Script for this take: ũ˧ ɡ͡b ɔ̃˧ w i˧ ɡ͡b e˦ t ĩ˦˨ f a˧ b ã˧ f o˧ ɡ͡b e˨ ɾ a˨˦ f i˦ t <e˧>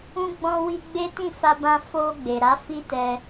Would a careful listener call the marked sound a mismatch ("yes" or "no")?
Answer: yes